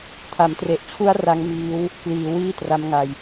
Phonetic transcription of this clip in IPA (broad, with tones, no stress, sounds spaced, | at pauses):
tʰ a˩˦ m t r e˨˩ ʔ t͡ɕʰ u˦˥ a̯ r a˦˥ ŋ m iː˦˥ w | k l iː˩˦ w iː˥˩ t r a˦˥ m ŋ a˧ j